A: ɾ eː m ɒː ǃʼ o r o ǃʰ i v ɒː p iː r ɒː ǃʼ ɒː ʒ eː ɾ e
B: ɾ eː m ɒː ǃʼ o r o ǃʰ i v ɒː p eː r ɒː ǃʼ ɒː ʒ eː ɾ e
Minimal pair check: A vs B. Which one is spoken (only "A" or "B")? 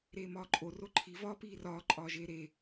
A